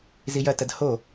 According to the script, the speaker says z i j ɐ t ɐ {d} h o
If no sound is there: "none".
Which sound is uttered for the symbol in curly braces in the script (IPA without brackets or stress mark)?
d